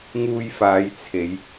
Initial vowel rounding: rounded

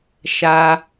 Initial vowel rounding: unrounded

